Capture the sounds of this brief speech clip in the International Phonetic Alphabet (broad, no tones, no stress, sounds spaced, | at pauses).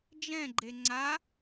d͡ʒ ɛ̃ ɡ͡ǃ e ŋ͡ǀ a